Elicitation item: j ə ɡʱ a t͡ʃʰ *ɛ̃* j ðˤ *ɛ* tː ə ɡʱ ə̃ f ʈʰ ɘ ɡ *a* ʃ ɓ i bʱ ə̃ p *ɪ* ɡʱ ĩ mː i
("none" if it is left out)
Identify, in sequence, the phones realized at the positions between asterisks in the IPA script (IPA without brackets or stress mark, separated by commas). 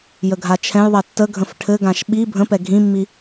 ɛ̃, ɛ, ã, ɛ